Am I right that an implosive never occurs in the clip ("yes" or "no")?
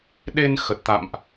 no